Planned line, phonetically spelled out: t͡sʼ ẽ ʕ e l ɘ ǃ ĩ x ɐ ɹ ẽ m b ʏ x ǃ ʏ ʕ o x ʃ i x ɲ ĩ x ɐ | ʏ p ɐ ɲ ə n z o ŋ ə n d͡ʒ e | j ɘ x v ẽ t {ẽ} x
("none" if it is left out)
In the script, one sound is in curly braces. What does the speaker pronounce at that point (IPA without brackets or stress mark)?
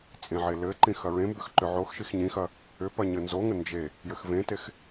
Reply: e